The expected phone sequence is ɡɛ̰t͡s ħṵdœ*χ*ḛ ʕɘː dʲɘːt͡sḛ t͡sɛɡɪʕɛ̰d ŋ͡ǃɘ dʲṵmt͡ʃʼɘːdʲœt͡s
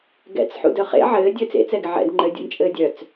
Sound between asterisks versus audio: correct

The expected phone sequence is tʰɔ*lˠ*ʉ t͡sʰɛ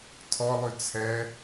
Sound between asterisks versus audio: correct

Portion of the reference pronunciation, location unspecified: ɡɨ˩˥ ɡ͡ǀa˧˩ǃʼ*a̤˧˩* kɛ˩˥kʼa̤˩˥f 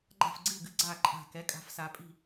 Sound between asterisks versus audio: correct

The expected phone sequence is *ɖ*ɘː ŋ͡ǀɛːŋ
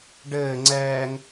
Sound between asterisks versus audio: correct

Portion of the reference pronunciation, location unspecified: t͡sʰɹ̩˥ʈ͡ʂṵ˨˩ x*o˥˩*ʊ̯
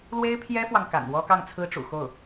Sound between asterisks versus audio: correct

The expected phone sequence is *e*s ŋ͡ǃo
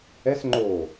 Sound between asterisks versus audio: incorrect: ɛ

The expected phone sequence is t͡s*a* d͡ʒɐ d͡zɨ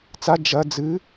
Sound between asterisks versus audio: correct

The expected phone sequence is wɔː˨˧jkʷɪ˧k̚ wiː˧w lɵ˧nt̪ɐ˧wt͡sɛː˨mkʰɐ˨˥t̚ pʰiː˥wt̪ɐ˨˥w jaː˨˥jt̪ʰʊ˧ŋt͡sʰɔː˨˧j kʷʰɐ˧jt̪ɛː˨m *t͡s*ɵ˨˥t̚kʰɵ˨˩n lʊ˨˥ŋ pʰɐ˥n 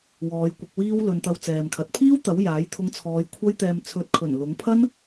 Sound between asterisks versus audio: incorrect: t͡sʰ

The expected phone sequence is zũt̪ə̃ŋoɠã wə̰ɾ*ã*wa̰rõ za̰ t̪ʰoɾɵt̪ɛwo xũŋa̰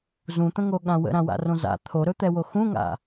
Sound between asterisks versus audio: correct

